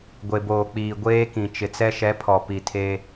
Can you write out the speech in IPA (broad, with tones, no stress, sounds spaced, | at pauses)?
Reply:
ɡʷ e˨ b oː˨ k͡p iː˨ ɡʷ eː˦ k ĩ˨ t͡ʃ ɪ˨ t͡s ɛ˦ ʃ ɛ˨˦ pʰ ɔ˨ p i˨ tʰ e˦